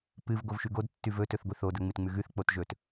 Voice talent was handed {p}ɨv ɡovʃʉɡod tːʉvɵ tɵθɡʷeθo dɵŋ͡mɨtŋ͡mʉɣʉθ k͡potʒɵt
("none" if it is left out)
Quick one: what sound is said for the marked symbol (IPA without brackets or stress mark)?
p